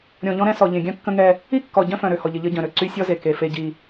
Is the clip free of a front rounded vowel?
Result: no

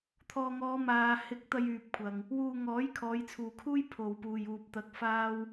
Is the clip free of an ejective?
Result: yes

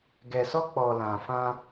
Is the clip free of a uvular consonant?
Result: yes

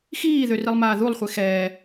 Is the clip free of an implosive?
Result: yes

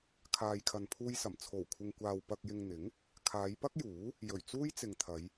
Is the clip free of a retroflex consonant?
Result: yes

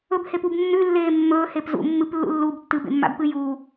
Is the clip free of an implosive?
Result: yes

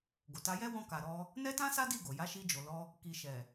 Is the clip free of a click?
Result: yes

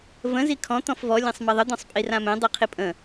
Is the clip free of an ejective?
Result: no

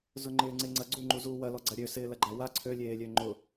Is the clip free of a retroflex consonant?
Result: yes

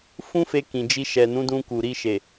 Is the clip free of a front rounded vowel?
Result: yes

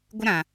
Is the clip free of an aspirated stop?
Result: yes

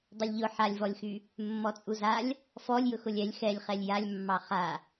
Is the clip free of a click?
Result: yes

